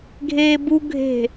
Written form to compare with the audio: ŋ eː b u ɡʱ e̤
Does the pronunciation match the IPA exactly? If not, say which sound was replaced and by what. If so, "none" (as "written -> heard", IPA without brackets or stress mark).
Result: ŋ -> ɡʱ